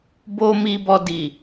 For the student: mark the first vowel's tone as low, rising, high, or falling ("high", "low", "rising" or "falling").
high